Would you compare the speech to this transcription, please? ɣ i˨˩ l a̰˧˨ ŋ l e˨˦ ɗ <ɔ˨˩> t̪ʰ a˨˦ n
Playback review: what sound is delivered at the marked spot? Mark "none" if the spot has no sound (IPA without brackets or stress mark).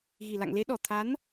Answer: ɔ˨˩